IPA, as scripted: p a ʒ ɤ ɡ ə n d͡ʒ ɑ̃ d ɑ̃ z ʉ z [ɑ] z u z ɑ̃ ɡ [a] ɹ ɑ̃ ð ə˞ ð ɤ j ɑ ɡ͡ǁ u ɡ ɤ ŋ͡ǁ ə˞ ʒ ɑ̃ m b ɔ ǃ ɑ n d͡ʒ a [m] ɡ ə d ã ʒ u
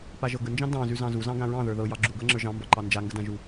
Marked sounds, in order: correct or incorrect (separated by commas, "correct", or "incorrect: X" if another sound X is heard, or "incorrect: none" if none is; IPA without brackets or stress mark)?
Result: incorrect: ɑ̃, incorrect: ã, incorrect: ŋ